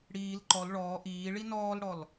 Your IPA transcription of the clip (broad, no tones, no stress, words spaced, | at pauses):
ɽiːl ǃɔl ɭɔː ʔiːɭi nɔːlɽɔl